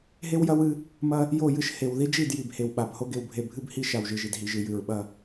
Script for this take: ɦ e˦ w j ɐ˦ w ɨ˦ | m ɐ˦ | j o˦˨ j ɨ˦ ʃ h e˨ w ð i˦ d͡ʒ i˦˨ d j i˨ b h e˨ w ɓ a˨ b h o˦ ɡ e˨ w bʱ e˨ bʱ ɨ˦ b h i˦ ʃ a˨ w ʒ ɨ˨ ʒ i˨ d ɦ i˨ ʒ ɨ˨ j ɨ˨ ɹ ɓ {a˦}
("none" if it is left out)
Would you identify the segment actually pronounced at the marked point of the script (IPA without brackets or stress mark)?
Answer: ɐ˦